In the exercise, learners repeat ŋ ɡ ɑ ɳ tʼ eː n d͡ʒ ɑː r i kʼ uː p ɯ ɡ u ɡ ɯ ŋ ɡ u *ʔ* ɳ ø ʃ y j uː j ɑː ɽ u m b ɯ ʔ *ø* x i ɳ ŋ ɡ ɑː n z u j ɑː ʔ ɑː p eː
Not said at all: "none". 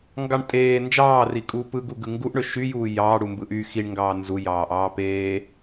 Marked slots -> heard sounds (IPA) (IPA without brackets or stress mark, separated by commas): ʔ, y